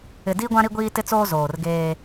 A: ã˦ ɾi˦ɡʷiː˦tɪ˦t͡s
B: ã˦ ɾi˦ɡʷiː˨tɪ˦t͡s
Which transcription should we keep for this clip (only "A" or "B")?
A